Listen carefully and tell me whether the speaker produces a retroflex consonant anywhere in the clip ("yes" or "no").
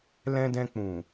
no